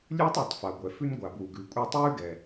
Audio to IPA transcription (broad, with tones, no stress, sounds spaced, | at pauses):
lʲ ʉː˥ tˤ ɛ˩ tˤ f a˩ ɡʷ ɛ˩ f ʉ˥ n ɡʷ a˩ b w u˩ ɡ ʉː˩ kʷʼ ɛ˥ tˤ ʉː˥ ɡ ɛ˩